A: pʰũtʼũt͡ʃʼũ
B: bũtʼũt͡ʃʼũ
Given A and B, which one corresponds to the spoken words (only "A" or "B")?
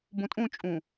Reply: B